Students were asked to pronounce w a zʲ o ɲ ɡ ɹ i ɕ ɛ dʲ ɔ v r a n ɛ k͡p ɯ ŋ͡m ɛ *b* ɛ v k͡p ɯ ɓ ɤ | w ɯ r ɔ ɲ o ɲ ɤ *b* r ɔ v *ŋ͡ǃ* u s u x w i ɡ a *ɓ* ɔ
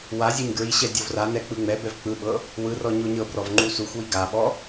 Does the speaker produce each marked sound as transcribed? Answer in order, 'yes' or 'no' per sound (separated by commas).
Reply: yes, yes, yes, yes